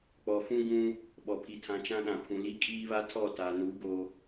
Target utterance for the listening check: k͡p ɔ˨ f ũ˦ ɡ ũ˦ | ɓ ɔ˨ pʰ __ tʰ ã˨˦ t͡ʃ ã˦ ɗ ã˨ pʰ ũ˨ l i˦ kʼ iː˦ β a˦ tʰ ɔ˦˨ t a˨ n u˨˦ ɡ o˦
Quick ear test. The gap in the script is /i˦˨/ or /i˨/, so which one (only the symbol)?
i˨